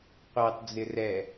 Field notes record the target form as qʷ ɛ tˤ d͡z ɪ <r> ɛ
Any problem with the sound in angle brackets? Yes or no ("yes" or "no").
no